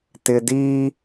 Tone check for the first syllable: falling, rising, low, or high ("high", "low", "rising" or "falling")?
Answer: low